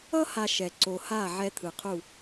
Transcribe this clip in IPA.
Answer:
ʌ˦ h a˨ ʃ ɛ˨ ǀ o˨ h a˦˨ ʕ ɛ˦ t̪ʰ ɯ˨ qʰ u˦˨

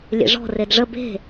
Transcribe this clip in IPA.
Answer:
lʲ ḛ ʐ ɔ̤ r e d ʐ ə b e̤

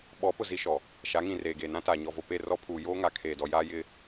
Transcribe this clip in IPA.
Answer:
ɓ ɔ˨˦ p ʊ˨ z i˦ ʃ ɔ˨ | ʃ a˨˦ ŋ ĩ˨ r eː˨ ɡ eː˨ n ã˦ t aː˨ ɲ ɔ˨ v o˨ p e˦˨ r ɔ˦ pʰ uː˨ j oː˦ ŋ a˨ kʰ eː˨ d ɔ˨ j aː˦ j ɪ˦

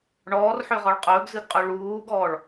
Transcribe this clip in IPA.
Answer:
ɳ ɔː r ħ ø ʁ ɔ ɭ qʼ ɵː ɡ z ɨ ɡ qʼ ø ɭ uː ɡ ɔː ɭ

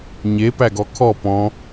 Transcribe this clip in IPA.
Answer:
ɲ e p æ ɡ ɔ kʰ ɔ p ɔ̃

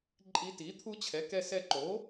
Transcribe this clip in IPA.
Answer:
ǃʼ i˧ t i˩˥ t̪ʰ u˧˥ t͡ɕʰ ɛ˩˥ k ɛ˧ s ɛ˧ ǃ o˩˥

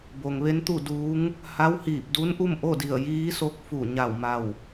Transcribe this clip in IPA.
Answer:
b o˩ ŋ ʋ e˧˥ n t̪ u˥˨ d uː˧˥ ŋ | h a˧˥ w h iː˧˩ p̚ d u˧˥ n ʔ u˥˨ m ʔ o˥˨ d i˧˩ ə̯ j iː˧˥ s o˧˥ k̚ f u˧˩ ɲ a˧˩ w m a˧˩ w

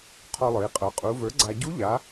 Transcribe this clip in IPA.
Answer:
qʰ ɔ˧ lˠ ə˞˩˧ i̯ qʼ ə˞˩˧ qʼ u˩˧ v ə˞˩˥ ɡ͡ǀ a˧ ɟ u˧˥ ʎ a˩˧

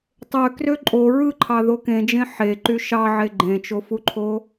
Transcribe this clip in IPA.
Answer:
tˤ ø k r ø ǃʼ o ɹ ɯ ǃʰ ɑ ð o k ẽ d͡ʒ ẽ ħ e ǃ y ʃ ɑ ʕ e ɡ͡ǃ ẽ t͡ʃ o f u ǃʰ o

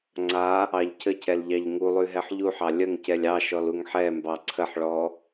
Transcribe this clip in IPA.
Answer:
ŋ͡ǀ a | ɑ ʎ cʰ ə cʰ ɛ l ʎ ɑ ʎ ŋ u lˠ ʉ ɦ ɛ ħ ʎ u ħ ɑ lʲ ə ŋ c ɛ lʲ ɑ ʃ ɔ l u ŋ ħ ɛ m b ɑ ǀʰ ə ħ ɭ ɔ

